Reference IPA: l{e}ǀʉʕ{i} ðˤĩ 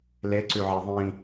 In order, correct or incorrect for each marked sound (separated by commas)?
correct, incorrect